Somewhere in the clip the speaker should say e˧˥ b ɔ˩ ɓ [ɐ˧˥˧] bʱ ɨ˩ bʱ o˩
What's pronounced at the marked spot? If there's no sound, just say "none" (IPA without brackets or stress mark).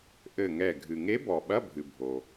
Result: ɐ˧˥˧